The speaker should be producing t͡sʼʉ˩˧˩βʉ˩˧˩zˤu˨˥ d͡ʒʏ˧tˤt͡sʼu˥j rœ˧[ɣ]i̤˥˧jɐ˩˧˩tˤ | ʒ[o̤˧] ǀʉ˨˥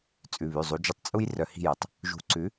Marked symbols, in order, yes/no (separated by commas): no, no